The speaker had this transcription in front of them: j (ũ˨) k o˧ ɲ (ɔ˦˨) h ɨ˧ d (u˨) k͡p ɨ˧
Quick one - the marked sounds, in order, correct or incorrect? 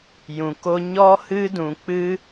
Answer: correct, incorrect: ɔ˧, incorrect: ũ˨

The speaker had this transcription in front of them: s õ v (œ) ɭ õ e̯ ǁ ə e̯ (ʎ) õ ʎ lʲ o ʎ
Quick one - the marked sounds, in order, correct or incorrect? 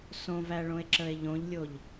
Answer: incorrect: æ, correct

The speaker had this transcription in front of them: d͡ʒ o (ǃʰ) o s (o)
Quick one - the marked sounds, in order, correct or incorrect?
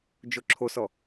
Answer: incorrect: ǁʰ, incorrect: ɔ

